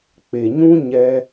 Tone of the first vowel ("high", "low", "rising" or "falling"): low